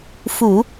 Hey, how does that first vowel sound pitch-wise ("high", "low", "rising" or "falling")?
low